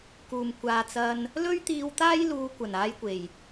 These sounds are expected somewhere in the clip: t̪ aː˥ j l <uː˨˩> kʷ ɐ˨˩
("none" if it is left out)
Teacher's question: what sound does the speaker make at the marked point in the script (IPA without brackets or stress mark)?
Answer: uː˧